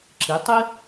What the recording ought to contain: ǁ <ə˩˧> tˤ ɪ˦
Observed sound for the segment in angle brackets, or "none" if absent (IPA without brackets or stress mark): ɪ˩˧